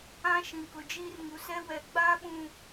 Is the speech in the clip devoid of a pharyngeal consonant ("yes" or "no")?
yes